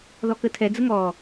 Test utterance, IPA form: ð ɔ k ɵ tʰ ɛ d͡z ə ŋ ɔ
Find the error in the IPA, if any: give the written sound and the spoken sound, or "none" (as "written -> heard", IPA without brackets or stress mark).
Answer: ɵ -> ə